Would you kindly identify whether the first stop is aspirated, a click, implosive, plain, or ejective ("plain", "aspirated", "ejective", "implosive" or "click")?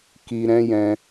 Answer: plain